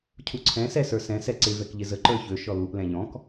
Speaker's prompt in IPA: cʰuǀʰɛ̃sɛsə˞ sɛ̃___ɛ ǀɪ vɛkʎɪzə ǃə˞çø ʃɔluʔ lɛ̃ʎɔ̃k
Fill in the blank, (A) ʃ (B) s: B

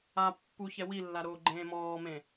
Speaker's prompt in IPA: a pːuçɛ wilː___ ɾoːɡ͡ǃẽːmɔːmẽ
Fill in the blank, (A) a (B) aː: A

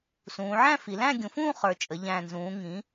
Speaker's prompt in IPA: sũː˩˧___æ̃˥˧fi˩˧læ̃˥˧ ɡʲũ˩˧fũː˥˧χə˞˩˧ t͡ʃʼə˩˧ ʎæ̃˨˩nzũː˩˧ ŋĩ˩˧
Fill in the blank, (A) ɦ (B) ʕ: B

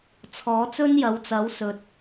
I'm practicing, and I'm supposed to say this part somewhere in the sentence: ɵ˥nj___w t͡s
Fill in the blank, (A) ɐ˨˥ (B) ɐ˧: A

